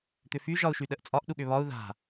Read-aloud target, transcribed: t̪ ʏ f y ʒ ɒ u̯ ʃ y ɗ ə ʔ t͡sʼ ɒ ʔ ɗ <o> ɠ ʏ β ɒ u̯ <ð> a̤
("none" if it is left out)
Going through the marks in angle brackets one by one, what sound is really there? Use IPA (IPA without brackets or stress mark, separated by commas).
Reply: u, ð